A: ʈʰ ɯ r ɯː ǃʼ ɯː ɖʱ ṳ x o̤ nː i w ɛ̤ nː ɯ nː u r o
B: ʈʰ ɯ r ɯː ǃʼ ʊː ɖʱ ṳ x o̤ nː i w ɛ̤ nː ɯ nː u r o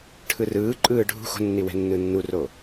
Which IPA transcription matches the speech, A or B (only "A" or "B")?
A